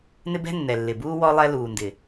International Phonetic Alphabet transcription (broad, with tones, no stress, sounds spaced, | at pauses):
n ɪ˦ b ɛ̤˦ nː ɛ˨ lː ɪ˨ b uː˦ w ɔ˦ lˠ ɛ˦ l uː˨ n d ɪ˨